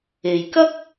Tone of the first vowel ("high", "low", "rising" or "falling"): low